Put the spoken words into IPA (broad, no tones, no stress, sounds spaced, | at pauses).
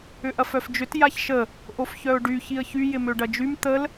ʏ ʔ ɐ f œ f d͡ʒ ʏ t j a ç ʃ ə | ʔ o f ç œ ʊ̯ ɖ y ç i ə̯ ç y j ɪ m ø ɖ ɐ d͡ʒ y m t̪ ə l